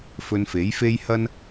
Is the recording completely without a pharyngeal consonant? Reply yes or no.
yes